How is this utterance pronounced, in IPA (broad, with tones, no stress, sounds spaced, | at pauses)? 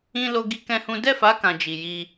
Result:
ĩ˧ l o˧ ɡ i˧ k ɛ̃˦ h ũ˦ d ɛ˦˨ f a˨˦ k ã˧ d͡ʒ i˨ j i˧